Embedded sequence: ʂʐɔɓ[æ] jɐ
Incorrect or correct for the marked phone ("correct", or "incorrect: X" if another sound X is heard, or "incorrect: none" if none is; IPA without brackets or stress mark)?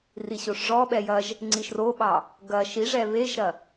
incorrect: ɛ